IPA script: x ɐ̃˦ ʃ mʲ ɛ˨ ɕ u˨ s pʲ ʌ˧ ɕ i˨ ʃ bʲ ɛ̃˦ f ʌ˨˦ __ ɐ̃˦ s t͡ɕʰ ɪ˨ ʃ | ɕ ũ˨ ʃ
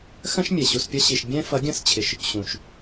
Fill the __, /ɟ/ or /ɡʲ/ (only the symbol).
ɡʲ